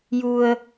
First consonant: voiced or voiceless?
voiced